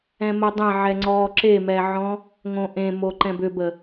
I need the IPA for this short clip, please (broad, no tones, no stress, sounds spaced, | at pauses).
ɛ̃ m ə dˤ ẽ ʕ ɛ ŋ͡ǀ ɔ ǁ e m ɛ ʕ ɔ̃ | ŋ õ ʔ ẽ m o ǃ ɛ̃ b ʏ b ə